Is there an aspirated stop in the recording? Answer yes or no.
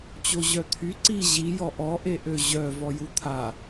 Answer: yes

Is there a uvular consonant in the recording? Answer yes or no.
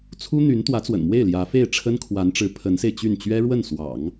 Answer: no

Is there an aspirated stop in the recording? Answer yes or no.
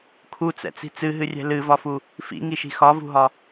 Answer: yes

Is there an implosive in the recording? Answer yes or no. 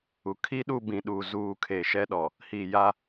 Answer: yes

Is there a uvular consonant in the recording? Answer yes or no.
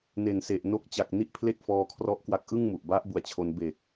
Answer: no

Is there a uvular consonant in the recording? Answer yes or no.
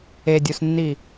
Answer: no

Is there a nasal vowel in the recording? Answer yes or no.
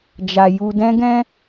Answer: yes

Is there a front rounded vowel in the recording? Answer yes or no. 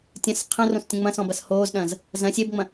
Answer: no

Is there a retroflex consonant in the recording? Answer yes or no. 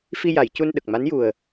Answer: no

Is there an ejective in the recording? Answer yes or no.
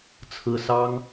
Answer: no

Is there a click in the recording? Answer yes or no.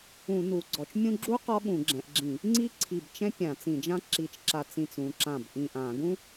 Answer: yes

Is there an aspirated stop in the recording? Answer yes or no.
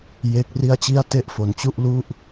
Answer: no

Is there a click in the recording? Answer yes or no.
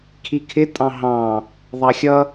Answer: no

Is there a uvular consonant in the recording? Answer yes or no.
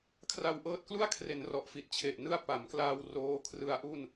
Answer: no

